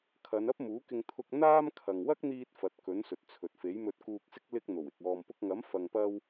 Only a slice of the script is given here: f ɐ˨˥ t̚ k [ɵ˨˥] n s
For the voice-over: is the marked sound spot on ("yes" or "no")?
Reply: yes